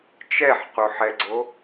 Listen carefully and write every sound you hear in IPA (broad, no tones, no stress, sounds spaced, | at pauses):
t͡ʃ ɛ ħ q u ħ ɛ ɡ͡ǀ o